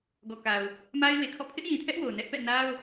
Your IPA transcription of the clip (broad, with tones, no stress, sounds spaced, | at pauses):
ɡ ɔ˨ k a˨ ʊ̯ | m a˦ ɪ̯ w e˨ kʰ ɔ̰˦˨ pʰ ɪ˦ ʔ j ĩ˨ tʰ ɛ˦ ʔ w o˨ ʊ̯ n ɛ˦ ʔ p ɛ̰˦˨ n a˦ ʊ̯